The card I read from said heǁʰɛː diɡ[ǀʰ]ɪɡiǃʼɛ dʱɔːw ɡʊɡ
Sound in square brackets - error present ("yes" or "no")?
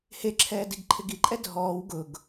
yes